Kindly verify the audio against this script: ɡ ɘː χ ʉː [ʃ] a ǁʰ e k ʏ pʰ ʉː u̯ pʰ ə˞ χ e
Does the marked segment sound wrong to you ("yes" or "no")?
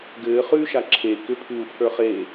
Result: no